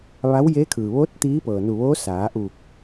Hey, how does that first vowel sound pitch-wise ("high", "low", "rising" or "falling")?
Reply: rising